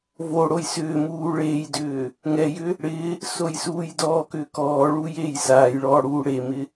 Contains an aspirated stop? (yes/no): no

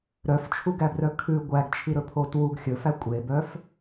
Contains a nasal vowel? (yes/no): no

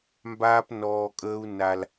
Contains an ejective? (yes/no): yes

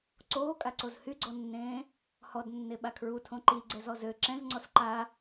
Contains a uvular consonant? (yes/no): no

